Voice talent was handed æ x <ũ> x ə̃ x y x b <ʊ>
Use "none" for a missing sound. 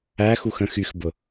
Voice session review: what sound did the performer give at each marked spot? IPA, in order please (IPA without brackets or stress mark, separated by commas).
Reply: u, ʊ